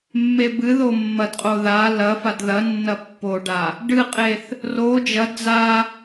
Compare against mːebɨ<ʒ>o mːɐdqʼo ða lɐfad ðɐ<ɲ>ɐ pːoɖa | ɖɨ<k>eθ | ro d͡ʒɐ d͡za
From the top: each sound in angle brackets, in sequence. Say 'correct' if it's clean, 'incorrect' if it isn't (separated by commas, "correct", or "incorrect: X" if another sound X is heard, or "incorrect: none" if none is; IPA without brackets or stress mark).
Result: incorrect: ð, incorrect: nː, incorrect: qʼ